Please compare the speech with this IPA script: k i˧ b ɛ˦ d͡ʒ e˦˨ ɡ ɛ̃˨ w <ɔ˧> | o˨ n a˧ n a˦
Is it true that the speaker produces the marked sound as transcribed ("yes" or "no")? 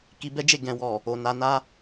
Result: no